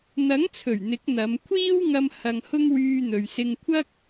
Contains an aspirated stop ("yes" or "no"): yes